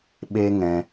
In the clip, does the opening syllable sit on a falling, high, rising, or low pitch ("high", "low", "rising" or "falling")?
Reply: high